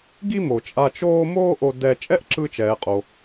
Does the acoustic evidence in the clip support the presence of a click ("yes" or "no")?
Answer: yes